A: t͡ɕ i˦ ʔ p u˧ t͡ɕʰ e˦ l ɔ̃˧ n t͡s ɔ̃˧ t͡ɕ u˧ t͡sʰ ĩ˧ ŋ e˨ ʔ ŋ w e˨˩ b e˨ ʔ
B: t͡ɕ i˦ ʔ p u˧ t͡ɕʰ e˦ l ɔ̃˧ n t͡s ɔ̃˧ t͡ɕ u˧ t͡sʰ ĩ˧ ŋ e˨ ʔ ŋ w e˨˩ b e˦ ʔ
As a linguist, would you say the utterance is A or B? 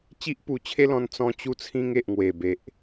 A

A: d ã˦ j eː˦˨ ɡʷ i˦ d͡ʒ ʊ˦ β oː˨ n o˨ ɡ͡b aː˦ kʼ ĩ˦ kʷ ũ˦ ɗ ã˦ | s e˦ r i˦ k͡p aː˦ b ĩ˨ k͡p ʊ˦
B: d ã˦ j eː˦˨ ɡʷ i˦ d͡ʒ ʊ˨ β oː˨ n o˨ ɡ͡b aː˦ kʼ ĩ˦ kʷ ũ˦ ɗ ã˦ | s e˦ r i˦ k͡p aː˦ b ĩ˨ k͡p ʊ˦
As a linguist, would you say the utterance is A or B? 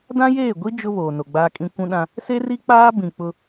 A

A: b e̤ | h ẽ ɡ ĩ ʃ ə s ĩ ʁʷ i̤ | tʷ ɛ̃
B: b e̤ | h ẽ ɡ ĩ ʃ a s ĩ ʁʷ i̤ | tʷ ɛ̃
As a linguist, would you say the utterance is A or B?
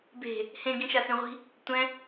B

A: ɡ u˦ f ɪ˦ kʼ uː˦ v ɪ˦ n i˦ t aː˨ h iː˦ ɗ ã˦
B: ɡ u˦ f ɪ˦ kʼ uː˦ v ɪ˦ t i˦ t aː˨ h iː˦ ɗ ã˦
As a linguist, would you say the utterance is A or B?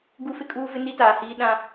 A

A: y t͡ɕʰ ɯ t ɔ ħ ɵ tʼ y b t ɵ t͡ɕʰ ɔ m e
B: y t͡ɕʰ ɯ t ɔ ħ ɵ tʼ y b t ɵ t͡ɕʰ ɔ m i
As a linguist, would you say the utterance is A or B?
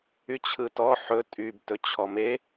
A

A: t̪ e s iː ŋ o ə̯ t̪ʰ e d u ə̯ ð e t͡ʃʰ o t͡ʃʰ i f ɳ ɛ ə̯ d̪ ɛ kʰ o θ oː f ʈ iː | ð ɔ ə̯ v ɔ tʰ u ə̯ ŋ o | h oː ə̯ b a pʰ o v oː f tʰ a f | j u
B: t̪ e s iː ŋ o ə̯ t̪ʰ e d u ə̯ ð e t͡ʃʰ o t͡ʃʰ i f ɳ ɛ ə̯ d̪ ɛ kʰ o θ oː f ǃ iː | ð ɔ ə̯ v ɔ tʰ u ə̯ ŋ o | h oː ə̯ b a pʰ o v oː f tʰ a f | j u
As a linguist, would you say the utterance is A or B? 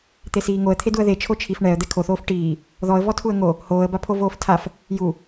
A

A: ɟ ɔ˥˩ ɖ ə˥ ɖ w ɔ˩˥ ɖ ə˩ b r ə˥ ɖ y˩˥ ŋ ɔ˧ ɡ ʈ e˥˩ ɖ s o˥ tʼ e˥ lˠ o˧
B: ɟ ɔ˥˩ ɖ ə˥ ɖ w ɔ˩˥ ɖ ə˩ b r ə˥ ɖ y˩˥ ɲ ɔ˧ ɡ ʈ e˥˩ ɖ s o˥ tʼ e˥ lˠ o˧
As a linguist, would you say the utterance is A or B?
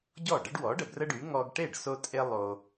A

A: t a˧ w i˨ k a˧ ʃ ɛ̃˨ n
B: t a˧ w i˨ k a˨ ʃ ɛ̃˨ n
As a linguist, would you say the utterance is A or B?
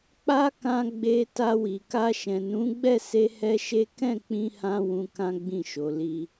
A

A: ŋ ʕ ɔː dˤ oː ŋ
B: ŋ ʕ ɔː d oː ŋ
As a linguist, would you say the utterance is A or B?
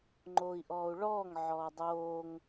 A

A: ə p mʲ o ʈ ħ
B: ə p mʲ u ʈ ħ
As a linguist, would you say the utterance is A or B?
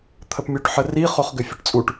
B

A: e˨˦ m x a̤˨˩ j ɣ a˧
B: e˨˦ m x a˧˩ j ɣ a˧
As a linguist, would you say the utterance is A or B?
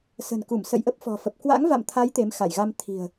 B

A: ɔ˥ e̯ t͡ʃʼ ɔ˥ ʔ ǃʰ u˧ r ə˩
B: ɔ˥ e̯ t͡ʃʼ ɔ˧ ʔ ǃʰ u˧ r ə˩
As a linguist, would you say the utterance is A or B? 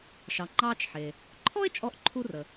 B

